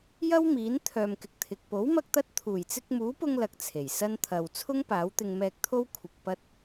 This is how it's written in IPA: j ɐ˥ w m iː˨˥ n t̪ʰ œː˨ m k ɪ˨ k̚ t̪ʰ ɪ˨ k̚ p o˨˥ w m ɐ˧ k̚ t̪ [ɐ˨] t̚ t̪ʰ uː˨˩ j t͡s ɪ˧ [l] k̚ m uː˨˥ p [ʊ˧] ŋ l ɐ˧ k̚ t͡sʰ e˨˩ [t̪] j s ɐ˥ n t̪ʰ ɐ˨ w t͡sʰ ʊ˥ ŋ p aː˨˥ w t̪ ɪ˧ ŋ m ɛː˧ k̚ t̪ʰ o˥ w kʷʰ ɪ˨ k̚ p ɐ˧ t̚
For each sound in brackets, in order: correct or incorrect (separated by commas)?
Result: incorrect, incorrect, correct, incorrect